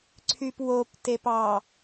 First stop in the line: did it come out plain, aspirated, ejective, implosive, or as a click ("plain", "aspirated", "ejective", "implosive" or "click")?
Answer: click